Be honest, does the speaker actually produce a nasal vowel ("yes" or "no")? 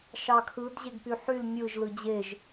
no